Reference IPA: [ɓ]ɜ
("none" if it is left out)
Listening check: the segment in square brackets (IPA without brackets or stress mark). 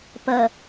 p